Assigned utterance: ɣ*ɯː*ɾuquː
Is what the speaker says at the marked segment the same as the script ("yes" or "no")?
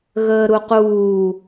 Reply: no